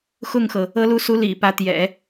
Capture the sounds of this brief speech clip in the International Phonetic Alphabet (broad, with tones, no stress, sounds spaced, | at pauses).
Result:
x ʊ˥˩ ŋ x ɤ˩ | ɤ˧˥ l u˧˥ s u˧˥ l ḭ˨˩ p ä˧˥ t̪ j ɛ̰˨˩˦